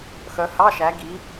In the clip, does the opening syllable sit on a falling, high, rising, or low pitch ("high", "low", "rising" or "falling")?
rising